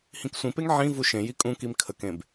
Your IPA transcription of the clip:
h ĩ k sʷ ĩ p e ŋ ʕ ĩ v u ʃ ẽ j i kʼ ũ k i m kʰ ə k ẽ b

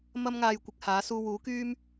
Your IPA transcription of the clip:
m ɐ˥ m ŋ aː˧ j kʷ ɪ˧ k̚ h aː˨˥ s uː˧ w uː˨˥ k yː˥ m

